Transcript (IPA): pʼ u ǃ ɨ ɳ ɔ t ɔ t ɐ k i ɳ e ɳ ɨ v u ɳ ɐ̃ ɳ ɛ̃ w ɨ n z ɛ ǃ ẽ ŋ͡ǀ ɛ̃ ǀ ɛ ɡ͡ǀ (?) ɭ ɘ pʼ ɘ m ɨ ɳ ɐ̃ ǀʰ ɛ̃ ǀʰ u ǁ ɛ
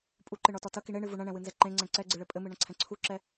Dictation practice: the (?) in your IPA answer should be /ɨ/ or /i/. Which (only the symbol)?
ɨ